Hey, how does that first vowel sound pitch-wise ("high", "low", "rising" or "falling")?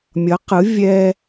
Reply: rising